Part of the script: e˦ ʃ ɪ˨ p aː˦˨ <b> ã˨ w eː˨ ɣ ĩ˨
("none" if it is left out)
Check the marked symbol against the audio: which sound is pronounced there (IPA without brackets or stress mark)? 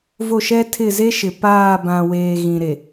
b